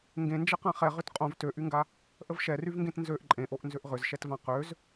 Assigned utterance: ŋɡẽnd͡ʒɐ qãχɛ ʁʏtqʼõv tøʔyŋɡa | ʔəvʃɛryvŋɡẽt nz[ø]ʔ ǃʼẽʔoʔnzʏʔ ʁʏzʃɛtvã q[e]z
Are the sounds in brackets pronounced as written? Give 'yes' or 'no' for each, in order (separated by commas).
yes, no